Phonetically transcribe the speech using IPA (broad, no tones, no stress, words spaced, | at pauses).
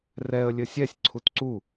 rɛə̯ lʲɘsʲɛsʲ ǀʰutǀu